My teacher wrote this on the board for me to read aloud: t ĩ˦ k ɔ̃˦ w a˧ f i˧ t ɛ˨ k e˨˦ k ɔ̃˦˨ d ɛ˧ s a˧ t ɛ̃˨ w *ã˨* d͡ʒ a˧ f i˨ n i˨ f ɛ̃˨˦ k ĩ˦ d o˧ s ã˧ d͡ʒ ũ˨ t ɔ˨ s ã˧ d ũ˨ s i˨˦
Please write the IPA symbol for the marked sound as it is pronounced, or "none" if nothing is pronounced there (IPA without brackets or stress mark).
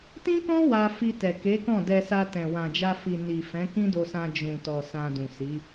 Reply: ã˨